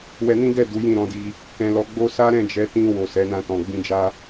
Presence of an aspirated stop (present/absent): absent